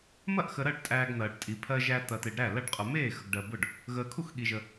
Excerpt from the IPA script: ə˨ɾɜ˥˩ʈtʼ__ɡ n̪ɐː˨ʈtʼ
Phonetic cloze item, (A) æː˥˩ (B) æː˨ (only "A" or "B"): B